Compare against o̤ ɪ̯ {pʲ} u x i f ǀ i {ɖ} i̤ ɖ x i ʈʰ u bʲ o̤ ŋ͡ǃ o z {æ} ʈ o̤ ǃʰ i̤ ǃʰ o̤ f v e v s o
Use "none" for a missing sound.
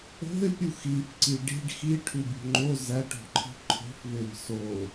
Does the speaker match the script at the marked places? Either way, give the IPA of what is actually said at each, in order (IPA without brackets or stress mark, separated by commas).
pʲ, ɖ, æ